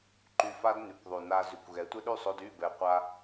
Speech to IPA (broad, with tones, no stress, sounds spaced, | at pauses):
ǃ y˧ f a˦ d n y˨ kʷ ðˤ y˨ n a˧ z y˨ kʷ ɣ ɛ˨˦ tʷ ɛ˦ ɗ y˦˨ sˤ o˧ d y˦˨ b ɛ˨ qʷ a˧